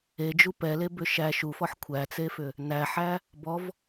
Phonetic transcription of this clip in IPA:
e d͡ʒ u p ɛ l e b ʏ ʃ æ ʃ u f ɔ ħ kʷʰ æ t͡s e f ʏ | n æ ħ æ | b ɔ v

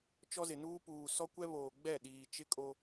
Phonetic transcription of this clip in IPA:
t͡ʃ ɔ˦ z ɪ˨ n uː˦ p uː˨ s ɔ˦ kʷ ɛ˦ β oː˨ ɡ͡b ɛ˦˨ ɗ iː˨ t͡ʃ ɪ˦ kʼ o˦

